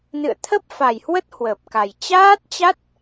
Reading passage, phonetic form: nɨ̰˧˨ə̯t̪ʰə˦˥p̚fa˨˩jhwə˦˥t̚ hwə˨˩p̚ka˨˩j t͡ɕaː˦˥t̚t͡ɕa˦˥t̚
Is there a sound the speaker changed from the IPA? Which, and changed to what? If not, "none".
none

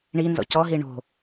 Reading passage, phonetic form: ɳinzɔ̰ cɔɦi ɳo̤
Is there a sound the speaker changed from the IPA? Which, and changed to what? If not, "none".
none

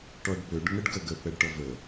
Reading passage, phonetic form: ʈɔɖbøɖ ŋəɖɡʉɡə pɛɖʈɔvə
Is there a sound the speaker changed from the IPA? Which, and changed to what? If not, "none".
ʉ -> ə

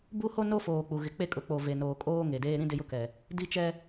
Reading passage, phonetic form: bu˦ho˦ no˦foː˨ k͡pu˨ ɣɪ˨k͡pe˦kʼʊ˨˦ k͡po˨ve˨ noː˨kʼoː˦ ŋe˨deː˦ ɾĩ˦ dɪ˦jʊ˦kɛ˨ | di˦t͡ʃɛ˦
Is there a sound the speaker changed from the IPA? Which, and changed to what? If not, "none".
none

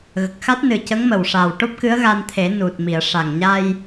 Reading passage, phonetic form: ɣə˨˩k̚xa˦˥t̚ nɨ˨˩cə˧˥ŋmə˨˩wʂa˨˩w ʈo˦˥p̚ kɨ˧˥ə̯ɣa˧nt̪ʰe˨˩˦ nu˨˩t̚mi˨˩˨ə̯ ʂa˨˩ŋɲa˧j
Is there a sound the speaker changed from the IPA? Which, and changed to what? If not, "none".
none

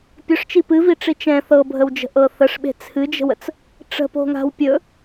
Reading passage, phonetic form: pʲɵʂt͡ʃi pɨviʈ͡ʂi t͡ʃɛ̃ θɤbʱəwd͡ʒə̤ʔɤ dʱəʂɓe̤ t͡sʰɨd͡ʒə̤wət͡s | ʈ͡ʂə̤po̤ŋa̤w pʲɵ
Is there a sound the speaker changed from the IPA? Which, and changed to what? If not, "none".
dʱ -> θ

